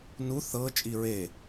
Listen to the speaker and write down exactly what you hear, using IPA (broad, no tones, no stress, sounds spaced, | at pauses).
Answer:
n u θ ɤ t͡ʃʼ i ɹ e